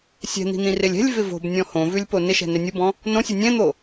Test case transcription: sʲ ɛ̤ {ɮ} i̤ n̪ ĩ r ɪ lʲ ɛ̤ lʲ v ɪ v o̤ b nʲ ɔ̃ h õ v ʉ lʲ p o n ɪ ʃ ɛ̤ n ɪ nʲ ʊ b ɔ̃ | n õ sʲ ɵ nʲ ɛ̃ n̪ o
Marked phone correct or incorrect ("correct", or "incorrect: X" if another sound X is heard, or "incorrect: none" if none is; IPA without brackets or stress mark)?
incorrect: n̪